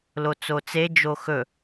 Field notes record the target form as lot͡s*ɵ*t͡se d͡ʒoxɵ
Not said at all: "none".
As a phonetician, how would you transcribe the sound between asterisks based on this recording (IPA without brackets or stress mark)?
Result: o